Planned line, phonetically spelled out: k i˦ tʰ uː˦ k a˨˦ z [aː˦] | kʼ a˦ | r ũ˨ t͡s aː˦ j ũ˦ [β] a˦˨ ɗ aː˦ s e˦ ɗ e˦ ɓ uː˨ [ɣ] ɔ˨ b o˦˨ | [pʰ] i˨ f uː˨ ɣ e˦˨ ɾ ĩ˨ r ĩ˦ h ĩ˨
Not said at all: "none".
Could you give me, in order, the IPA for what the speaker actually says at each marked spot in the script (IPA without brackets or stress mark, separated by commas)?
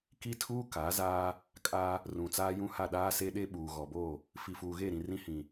aː˦, h, ɣ, f